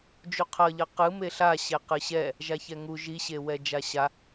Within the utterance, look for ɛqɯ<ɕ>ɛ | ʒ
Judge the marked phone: correct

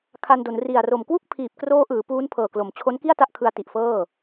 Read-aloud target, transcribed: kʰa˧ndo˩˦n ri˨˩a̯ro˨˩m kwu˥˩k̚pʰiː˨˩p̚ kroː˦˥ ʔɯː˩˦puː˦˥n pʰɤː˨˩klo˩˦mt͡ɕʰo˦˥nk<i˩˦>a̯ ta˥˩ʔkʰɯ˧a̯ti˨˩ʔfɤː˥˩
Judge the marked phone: incorrect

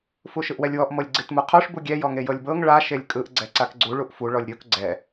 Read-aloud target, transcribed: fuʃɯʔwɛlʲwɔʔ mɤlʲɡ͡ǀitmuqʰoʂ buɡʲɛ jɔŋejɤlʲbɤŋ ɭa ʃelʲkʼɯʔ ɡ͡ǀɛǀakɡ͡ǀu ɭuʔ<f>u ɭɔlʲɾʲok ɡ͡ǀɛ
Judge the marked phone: correct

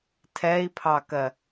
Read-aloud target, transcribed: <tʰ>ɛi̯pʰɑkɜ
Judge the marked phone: correct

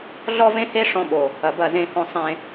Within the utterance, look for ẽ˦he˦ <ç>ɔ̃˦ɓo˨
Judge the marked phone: incorrect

